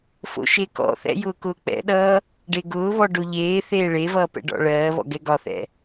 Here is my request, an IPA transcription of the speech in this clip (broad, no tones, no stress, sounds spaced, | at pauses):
f o̰ ʃ e k ɔ̰ θ ɛ̰ j ʊː k ʊː k͡p ɛ̰ ɗ ʌː | ɖ e ɡ ʊː β ɔ ɖ o ʎ eː θ eː ɭ e v ʌː p ɛ̰ ɖ ɔ̰ ɭ ɜː β ɔ̰ ɡ ɛ ɡ ɒ θ ɛ̰